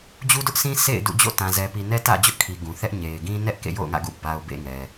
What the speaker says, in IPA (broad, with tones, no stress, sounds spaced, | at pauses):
d͡ʑ u˦ d ʊ˦ ʔ sʰ ĩ˦ sʰ ḛ˦˨ ɪ̯ d ṵ˦˨ d͡ʑ o̰˦˨ t ã˨ z ɛ˨ p i˨ n ɛ˦ t ä̰˦˨ d͡ʑ ʊ˦ ʔ kʰ i˨ ɡ ũ˨ θ ɛ˦ ʔ ɲ e˨ ɪ̯ ɡ ĩ˦ n ɛ˦ ʔ k ḛ˦˨ j o̰˦˨ ʊ̯ ŋ ä̰˦˨ ɡ ṵ˦˨ b a˨ ʊ̯ b ḛ˦˨ ŋ ɛ˨